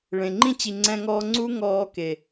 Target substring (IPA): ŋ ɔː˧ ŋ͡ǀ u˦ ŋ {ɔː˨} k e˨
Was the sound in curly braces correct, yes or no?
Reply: no